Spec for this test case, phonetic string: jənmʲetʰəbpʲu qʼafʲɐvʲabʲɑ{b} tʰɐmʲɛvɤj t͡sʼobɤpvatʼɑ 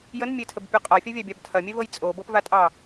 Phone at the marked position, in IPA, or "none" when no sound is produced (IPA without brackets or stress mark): b